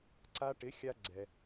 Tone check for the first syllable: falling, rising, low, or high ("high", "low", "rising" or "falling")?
high